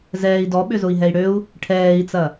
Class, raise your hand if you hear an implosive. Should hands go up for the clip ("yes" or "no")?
yes